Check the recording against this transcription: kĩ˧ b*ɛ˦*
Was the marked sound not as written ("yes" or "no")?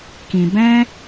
yes